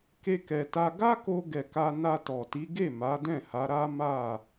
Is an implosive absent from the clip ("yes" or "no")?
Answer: yes